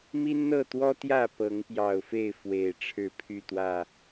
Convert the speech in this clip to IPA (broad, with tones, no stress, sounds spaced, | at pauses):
m i˦ n n̪ ɤ˥˨ t̪ w ɔ˦ t̪ j ä˥˨ p ɤ˨˦ ŋ p j ɑ˨˩ ʊ̯ f e˥˨ ɪ̯ f w e˨˩ ɪ̯ ʈ͡ʂʰ ɻ̩˥˨ pʰ y˥˨ t̪ w ä˥˨